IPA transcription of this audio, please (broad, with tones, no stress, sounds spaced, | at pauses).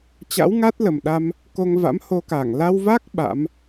t͡ɕ a̰˧˥ w ŋ a˦˥ t̚ l ə˨˩ m ɗ a˧ m | k o˧ ŋ v a̰˧˥ m h o˧ k aː˧˩ ŋ l a˧ w v a˦˥ k̚ ɓ a̰˧˥ m